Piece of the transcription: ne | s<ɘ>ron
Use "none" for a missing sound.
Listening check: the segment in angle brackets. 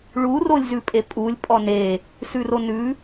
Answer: ʉ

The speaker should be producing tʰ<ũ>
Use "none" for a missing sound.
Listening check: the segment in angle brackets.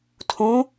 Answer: ũ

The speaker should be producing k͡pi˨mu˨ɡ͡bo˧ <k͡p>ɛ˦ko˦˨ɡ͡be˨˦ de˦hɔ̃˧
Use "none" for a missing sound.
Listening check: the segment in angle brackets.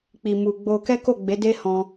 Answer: k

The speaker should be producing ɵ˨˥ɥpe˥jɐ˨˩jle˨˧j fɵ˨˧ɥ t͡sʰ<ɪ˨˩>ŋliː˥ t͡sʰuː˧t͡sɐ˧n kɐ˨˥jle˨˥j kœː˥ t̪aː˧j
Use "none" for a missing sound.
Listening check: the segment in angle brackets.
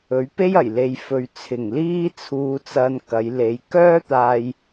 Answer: ɪ˨˩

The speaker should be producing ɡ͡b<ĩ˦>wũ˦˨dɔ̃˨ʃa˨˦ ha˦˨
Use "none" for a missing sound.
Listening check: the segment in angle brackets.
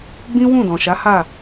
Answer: ĩ˦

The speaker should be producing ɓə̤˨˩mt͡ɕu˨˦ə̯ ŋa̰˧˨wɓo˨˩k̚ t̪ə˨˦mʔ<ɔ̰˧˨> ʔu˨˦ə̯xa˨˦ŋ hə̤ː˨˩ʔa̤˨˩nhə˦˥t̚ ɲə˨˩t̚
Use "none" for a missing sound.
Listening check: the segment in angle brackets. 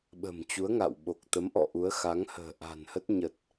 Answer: ɔ̰˧˨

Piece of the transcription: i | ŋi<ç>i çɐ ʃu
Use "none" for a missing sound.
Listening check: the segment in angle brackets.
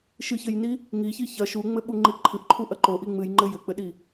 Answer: ç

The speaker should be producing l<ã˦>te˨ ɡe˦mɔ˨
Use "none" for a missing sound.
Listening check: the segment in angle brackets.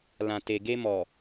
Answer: ã˨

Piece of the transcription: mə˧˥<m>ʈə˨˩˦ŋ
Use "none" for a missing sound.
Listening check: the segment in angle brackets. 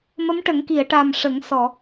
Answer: m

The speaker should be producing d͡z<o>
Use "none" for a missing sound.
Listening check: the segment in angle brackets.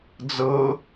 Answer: ɤ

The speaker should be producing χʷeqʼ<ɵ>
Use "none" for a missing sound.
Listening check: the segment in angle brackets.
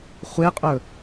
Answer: ɵ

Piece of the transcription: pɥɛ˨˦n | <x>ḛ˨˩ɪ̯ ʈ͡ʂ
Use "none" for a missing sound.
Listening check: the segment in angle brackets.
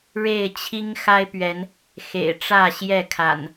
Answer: x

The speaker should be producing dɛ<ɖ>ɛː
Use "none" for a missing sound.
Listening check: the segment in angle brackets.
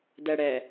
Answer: ɽ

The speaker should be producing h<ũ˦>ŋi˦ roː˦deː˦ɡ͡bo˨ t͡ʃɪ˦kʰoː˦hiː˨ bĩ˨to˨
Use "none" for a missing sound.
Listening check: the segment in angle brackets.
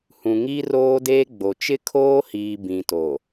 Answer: ũ˨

